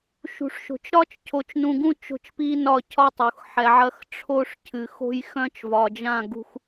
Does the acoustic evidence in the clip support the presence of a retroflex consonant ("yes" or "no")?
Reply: yes